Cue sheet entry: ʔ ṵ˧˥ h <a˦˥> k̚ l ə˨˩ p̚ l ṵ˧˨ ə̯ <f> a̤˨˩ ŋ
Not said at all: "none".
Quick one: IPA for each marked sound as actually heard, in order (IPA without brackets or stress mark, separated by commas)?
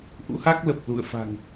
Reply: a˦˥, f